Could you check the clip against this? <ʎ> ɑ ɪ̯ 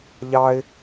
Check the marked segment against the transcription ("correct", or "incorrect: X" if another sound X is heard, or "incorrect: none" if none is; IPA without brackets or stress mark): correct